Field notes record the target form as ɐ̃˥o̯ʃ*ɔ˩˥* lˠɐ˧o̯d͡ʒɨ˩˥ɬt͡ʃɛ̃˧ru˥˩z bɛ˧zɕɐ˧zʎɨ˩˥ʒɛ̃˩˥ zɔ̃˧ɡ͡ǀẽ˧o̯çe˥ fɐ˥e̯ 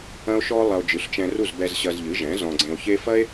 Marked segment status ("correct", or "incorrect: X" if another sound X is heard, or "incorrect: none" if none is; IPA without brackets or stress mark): incorrect: ɔ˥